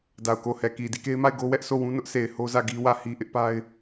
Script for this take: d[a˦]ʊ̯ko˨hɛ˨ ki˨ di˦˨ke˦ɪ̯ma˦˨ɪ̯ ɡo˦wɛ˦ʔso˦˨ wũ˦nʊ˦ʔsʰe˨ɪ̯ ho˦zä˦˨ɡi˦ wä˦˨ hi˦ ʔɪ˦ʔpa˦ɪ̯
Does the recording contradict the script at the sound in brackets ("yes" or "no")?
yes